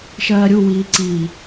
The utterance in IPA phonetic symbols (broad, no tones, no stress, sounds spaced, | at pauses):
ʃ ɜː ɾʲ u w iː ǀ i